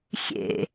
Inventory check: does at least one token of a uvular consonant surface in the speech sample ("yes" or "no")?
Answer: no